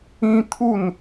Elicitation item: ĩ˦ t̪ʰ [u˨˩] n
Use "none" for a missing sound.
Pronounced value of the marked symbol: u˥˧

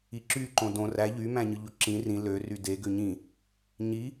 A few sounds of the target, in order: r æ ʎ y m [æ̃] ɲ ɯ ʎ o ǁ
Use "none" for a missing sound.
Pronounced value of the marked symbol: æ̃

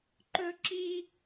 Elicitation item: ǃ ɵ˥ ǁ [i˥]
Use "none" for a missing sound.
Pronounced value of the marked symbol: i˥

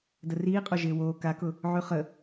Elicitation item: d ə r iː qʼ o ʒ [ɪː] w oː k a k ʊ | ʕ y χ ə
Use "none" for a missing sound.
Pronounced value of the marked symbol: ɪː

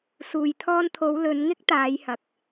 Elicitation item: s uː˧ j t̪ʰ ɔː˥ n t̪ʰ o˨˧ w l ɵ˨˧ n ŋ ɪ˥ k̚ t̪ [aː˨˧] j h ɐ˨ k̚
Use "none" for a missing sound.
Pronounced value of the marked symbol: aː˨˧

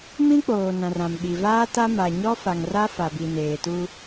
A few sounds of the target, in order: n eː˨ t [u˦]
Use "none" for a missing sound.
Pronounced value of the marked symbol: u˦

